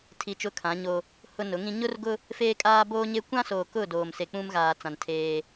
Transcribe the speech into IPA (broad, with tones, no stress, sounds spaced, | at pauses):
tʰ i˨ t͡ʃ ʊ˦ kʰ ã˨˦ ɲ o˦ | h ʊ˦ n ʊ˨˦ ŋ ĩ˦ ɲ ʊ˦ r ɡ ʊ˦ | f eː˦ kʼ aː˦ b oː˦ ɲ e˦ kʷ ã˦ s oː˨ k ʊ˦˨ d oː˨ m s e˨ k͡p ũ˦ m ɣ aː˨ t͡s ã˨ n tʰ eː˦